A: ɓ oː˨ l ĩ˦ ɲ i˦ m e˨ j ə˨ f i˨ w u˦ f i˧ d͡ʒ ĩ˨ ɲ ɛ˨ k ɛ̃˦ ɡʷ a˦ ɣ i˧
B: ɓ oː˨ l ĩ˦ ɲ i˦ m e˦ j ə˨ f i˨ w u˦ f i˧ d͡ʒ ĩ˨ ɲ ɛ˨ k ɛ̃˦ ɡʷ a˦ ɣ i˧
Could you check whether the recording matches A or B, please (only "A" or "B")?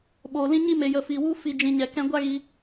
A